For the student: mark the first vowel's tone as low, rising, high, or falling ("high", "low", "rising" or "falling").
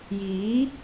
rising